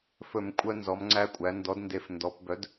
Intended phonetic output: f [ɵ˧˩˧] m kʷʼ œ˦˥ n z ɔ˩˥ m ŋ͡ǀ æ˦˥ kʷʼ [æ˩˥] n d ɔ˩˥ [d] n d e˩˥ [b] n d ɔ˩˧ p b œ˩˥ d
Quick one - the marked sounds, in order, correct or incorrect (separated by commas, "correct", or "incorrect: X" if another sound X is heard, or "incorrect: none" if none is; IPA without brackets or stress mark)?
correct, correct, correct, incorrect: f